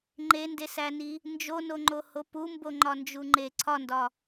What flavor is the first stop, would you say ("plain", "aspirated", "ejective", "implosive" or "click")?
click